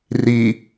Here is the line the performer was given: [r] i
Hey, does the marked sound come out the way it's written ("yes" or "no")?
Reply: yes